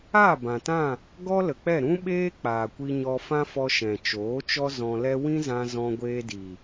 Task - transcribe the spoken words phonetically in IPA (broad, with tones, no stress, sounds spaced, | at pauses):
aː˦˨ b ã˨ t ã˦˨ | ɡ ɔ˦ l ə˨ k͡p ɛ˦˨ ɾ ũ˦ ɓ eː˦ k͡p aː˨ kʷ i˧ ɲ ɔ˧ f ã˦ f ɔ˧ ʃ ɛ̃˨ t͡ʃ oː˨˦ t͡ʃ ɔ˦ z ɔ̃˧ l ɛ˦ w ĩ˦ z ã˧ z ɔ̃˧ ɡʷ eː˧ d i˨